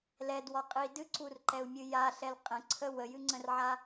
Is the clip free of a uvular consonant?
no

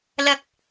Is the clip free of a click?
yes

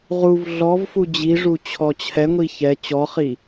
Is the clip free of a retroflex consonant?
no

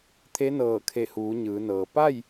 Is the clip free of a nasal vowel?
yes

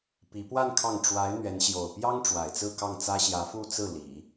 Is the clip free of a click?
yes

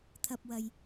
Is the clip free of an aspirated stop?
no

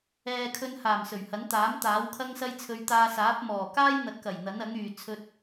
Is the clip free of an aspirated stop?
no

